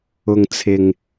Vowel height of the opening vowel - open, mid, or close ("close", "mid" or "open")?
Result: close